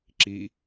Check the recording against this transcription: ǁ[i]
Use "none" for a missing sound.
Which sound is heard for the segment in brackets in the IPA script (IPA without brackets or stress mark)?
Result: i